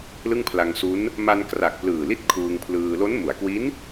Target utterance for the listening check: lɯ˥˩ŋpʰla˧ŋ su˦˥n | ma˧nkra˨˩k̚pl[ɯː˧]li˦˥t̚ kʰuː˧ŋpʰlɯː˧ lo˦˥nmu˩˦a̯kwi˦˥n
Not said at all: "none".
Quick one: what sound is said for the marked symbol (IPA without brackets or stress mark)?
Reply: ɯː˨˩